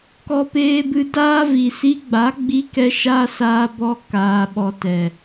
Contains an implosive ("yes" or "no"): yes